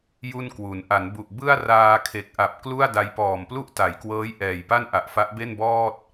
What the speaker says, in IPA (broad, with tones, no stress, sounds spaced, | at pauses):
j u˥˩ n k w u˩˦ n ʔ a˩˦ n b u˨˩ ʔ b ɯ˥˩ a̯ r aː˧ kʰ e˨˩ k̚ ʔ a˨˩ p̚ k l u˥˩ a̯ d a˧ j p ɔː˨˩ m p l u˥˩ ʔ t a˩˦ j k w ɤː˦˥ j ʔ ɛː˨˩ j p a˥˩ n ʔ a˨˩ ʔ f a˦˥ ʔ b e˥˩ n b ɔː˥˩ t̚